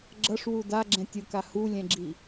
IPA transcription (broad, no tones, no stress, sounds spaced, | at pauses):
ɡ͡ǁ ʌ ʂ w u d a ɡ͡ǁ ɛ̃ tʲ ɯ k a h u lʲ ɛ̃ ɡ͡ǁ i